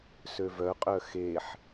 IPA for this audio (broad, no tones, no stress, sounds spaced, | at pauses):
s ø v œ qʼ œ x e ħ